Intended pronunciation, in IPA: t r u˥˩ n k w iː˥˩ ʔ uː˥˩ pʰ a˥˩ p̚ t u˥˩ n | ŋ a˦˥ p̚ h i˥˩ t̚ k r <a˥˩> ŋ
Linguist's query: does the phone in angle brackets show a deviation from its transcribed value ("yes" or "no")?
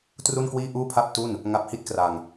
yes